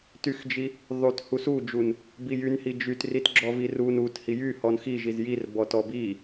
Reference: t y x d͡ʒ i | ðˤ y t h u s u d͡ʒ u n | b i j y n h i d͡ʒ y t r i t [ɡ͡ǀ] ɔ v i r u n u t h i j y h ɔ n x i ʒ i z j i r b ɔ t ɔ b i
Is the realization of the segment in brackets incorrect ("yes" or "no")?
yes